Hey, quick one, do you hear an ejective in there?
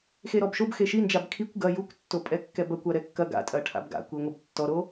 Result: yes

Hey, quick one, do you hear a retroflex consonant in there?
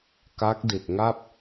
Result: no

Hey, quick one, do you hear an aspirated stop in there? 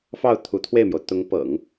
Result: yes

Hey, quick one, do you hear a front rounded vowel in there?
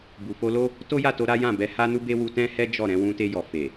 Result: no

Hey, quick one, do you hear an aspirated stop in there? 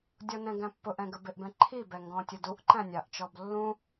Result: yes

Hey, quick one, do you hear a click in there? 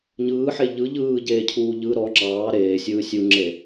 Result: yes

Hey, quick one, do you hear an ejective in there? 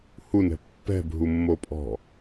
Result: yes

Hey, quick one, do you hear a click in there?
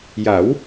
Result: no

